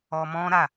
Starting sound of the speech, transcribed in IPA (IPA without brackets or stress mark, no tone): ɔ